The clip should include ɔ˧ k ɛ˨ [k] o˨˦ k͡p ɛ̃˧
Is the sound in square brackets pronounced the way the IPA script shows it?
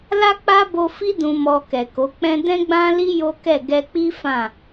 yes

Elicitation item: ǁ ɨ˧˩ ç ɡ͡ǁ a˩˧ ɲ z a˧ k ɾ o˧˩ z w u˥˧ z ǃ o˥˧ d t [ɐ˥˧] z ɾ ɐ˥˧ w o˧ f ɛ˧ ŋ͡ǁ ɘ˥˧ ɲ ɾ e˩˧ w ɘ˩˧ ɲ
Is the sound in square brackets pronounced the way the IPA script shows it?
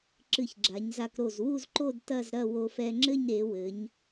yes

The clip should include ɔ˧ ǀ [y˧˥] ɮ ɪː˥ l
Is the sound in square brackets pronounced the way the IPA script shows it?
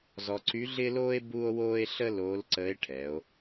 yes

